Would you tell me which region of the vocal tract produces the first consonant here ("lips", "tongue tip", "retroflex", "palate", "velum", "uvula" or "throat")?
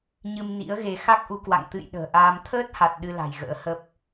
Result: palate